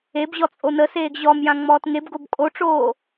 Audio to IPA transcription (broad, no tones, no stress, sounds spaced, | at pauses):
e b ʑ ɔ t͡sʼ o n ə s eː ɡ ʑ ɔ m j ã ŋ͡m ɔː t ŋ e b ɡ o b kʼ o ʈ͡ʂ oː